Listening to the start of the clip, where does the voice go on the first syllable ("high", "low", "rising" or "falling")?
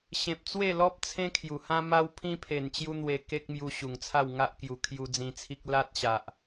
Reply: low